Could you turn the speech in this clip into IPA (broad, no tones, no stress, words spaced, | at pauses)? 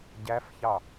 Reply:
ɟæfçɑ